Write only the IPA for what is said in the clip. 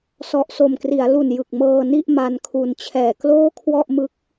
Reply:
s ɔ˨˩ ʔ s o˨˩ m k r i˩˦ a̯ l u˨˩ n j ɯ˨˩ k̚ m ɤː˧ n i˥˩ ʔ m a˧ n kʰ u˨˩ n t͡ɕʰ ɛː˨˩ k l oː˥˩ kʰ w ɔ˥˩ ʔ m ɯ˦˥ k̚

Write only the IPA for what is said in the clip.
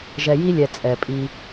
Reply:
ʒ ɛ˨ j i˦ lʲ ɛ˨ t͡sʼ ɛ˨ pʼ i˦

